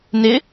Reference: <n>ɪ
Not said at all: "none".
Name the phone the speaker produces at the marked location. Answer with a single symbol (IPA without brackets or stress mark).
n